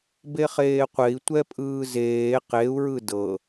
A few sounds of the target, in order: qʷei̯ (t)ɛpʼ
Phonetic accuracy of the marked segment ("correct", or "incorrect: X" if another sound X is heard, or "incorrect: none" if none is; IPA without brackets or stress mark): incorrect: tʷ